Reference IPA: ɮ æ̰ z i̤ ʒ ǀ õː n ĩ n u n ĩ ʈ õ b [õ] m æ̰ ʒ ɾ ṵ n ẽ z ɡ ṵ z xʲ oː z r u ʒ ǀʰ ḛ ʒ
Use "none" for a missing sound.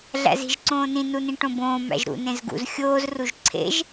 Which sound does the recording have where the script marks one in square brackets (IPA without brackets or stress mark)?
õː